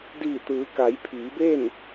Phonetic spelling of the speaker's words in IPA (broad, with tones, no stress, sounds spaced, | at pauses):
d iː˧˩ t̪ ɯː˩˧ k a˩˧ j pʰ iː˩˧ b e˥˨ n